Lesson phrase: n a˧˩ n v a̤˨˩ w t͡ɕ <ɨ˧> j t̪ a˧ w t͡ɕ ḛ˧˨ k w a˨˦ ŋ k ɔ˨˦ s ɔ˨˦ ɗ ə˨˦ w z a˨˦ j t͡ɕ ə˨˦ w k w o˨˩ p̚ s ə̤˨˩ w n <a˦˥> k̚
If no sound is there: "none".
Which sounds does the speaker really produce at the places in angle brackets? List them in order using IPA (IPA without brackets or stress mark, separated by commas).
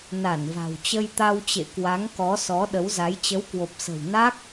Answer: ə˧, a˦˥